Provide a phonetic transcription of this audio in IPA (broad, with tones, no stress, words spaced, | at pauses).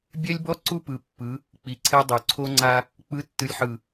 bʲɛ˦lʲbɔ˦ ǀu˦ pɯ˨pːɯ˨˦ | k͡pi˨ǀʰɛ˦dˤo˨ ǀʰo˦ŋ͡ǀa˦ | k͡pɯ˨˦tːɯ˨lʲħɯ˨